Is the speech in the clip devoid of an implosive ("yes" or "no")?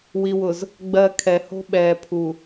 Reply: no